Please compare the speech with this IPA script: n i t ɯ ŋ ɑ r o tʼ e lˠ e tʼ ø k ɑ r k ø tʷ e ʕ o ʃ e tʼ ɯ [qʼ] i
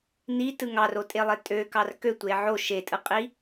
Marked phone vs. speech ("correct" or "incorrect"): correct